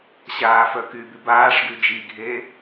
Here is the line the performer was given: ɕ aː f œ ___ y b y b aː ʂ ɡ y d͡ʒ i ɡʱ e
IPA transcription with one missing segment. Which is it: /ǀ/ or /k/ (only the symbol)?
k